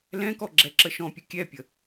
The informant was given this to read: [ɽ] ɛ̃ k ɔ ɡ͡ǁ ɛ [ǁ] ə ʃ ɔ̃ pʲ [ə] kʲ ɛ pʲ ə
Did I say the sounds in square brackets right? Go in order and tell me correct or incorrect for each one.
incorrect, correct, correct

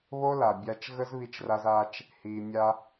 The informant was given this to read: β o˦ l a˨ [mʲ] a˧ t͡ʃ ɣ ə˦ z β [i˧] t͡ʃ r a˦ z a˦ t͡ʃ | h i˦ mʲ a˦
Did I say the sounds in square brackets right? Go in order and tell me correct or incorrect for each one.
incorrect, incorrect

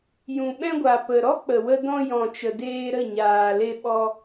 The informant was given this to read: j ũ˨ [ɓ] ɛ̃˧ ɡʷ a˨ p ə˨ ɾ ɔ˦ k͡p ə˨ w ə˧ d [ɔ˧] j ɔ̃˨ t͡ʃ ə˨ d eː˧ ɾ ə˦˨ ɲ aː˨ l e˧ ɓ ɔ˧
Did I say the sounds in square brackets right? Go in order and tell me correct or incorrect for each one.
correct, incorrect

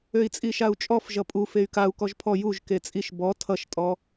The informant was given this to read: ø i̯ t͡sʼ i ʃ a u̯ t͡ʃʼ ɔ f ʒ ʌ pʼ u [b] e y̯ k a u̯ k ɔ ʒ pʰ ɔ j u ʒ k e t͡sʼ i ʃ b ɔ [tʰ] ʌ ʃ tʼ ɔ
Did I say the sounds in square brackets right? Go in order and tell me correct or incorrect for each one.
incorrect, correct

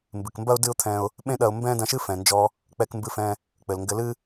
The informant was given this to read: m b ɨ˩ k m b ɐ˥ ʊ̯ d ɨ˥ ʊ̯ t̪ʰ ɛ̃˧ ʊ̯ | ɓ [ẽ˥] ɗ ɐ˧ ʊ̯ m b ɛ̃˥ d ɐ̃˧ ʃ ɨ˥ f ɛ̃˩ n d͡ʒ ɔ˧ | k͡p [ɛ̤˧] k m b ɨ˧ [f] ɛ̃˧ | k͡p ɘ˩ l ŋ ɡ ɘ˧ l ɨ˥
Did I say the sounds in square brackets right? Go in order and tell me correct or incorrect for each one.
correct, incorrect, correct

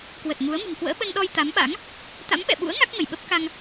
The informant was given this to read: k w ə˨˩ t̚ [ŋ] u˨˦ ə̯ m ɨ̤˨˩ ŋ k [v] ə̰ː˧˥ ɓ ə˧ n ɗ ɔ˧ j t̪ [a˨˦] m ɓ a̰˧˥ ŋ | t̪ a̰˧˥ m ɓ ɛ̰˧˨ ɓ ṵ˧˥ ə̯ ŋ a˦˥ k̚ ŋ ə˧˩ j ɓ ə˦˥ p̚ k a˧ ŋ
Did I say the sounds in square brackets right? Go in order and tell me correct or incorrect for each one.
correct, incorrect, correct

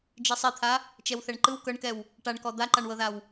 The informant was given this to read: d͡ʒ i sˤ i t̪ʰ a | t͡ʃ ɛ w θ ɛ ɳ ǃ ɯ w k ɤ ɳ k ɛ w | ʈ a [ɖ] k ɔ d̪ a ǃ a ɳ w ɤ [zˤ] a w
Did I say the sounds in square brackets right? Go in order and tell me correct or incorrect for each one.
incorrect, incorrect

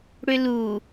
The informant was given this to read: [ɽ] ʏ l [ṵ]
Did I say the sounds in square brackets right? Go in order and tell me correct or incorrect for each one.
correct, incorrect

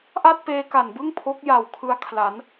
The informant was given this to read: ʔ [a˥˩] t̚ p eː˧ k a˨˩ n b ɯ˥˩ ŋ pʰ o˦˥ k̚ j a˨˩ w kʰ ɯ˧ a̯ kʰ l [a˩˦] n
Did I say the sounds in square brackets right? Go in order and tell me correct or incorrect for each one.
correct, correct

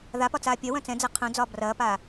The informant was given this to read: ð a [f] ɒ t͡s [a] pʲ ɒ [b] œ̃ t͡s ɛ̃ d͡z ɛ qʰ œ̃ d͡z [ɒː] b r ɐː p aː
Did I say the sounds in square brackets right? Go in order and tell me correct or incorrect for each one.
incorrect, incorrect, incorrect, correct

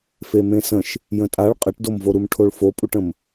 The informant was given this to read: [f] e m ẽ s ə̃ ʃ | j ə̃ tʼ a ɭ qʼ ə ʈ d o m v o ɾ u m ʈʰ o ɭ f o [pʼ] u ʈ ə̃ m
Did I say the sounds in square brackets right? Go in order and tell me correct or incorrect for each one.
correct, correct

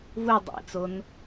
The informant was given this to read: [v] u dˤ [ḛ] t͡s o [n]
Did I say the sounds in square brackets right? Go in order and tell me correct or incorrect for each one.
correct, correct, correct

